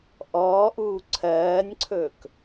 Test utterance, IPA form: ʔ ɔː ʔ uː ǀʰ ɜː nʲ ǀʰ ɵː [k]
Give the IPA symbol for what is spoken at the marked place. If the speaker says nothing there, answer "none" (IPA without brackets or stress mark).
k